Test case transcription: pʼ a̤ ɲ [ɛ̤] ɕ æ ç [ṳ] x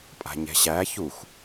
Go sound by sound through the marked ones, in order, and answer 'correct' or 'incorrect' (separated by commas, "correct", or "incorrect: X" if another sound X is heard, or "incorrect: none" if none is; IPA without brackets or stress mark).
correct, incorrect: u